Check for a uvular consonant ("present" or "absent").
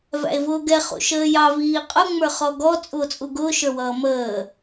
present